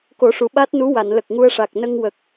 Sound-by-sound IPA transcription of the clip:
k o˨˩˦ ʂ u˨˩ ɓ a˦˥ t̚ n u˧˥ w a˨˩˨ n l ə˨˩ k̚ ŋ u˧ ə̯ ʂ a˨˩ k̚ n ə˧ ŋ w ə˨˩ k̚

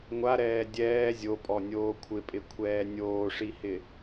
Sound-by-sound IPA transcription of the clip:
ŋʷ a ɾ ɛː dʲ ɛː zʲ o pʼ ɔ nʲ oː kʷʰ ɪ pʼ ɪ kʷʰ ɛː nʲ oː ʂ i h ɪ

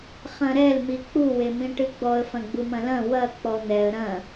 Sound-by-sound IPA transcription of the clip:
χ ɐ̃ ɾ ɛ l m i k͡p u w e m ĩ ʈ ɨ ɡ͡b ɔ ə̯ f ɐ̃ ɡ͡b u m ɐ̃ l ɐ̃ w ɐ k͡p ɔ n̪ ɛ ə̯ ɾ ɐ̃

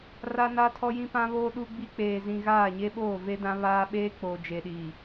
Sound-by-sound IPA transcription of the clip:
r a˦ n a˦ tʰ ɔ˦ j ĩ˦ p ã˦ β oː˦ ɗ u˦ ɡ͡b i˦ k͡p eː˨ z ĩ˨ ɣ aː˦˨ ɲ e˦ ɓ oː˦˨ v e˦ d ã˦ β aː˦ ɓ eː˦ k͡p oː˨ d͡ʒ e˨ ɗ iː˨

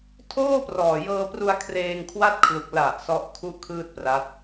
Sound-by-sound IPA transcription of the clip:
tʰ oː˥˩ p r ɔː˨˩ j ɤː˧ p r u˧ a̯ kʰ r eː˧ ŋ kʰ w a˥˩ t̚ kʰ l u˨˩ k̚ l a˨˩ ʔ s ɔ˦˥ ʔ kʰ u˥˩ ʔ kʰ ɯː˥˩ t̚ p r a˦˥ t̚

